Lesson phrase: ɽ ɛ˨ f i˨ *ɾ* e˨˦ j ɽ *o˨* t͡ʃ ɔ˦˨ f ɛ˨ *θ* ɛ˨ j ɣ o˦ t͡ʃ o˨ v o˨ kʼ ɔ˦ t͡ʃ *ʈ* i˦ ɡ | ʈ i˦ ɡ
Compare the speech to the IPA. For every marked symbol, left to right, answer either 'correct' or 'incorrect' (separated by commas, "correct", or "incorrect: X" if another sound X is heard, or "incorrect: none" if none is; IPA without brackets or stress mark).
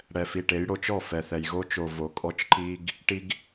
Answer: incorrect: ʈ, correct, correct, incorrect: ǃ